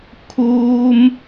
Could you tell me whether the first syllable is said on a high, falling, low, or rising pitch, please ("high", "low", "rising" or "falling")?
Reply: high